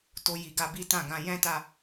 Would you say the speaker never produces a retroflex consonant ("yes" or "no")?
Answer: yes